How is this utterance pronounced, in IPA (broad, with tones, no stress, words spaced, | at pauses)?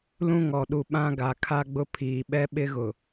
lũ˦ŋɔ˨ɗu˨ ɓã˦ɡa˨kʰa˦ ɡ͡bʊ˦pʰiː˨ ɓɛ˦ɓɪ˦ɣʊ˨